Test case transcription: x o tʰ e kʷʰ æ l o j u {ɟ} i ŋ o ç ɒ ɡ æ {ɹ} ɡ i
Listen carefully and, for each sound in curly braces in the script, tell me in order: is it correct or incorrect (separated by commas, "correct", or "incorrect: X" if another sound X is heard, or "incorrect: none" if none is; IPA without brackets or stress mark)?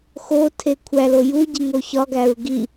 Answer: correct, correct